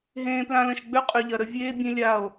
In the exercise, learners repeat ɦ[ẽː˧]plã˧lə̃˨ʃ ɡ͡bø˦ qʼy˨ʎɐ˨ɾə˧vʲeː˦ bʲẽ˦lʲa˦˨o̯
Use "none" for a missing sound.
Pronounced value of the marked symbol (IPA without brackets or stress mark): ẽː˧